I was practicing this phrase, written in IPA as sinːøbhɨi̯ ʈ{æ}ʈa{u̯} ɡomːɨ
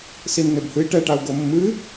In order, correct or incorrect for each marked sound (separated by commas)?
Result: incorrect, correct